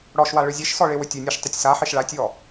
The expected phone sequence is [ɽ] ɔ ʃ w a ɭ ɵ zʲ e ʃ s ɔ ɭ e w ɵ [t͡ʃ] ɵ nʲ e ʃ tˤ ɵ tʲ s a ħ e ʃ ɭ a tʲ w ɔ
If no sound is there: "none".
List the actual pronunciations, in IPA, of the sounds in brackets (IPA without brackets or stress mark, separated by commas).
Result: ɽ, tʲ